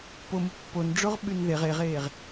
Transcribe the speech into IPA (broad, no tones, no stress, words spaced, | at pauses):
pomɯ pːonɖ͡ʐoʁ ɓynðeʁ eʁeːʁ